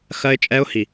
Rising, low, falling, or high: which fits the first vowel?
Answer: high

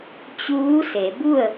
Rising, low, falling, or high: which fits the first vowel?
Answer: rising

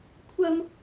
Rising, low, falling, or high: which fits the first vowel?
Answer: high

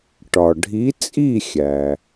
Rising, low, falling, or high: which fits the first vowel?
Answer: low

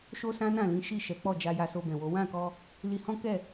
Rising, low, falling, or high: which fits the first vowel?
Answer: high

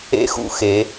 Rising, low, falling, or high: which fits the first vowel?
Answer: high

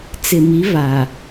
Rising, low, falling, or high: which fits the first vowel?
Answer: low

